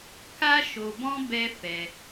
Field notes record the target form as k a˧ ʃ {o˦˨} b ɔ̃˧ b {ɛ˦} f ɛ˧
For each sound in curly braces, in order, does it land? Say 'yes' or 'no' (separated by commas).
no, yes